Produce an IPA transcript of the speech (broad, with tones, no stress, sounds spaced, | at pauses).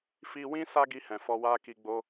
f i˧ w ĩ˦ s a˦ ɡ i˧ h ɛ̃˨ f ɔ˧ w a˦ k i˧ ɡ͡b o˦